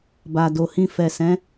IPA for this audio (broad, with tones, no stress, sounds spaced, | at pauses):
b a˨ d o˨ h ĩ˧ f ɛ˨ s ɛ̃˨˦